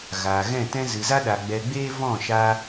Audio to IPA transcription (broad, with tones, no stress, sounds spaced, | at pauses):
ɣ aː˨ ɣ ɛ̃˦˨ t ɛ̃˦ z ɨ˨ z a˦ ɗ a˨ ɡ͡b ɛ˨ ɡ͡b eː˧ v ɔ̃˦˨ ʃ a˦